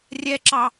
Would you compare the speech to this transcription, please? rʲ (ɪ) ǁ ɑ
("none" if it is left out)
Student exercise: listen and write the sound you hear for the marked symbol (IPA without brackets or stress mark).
ɛ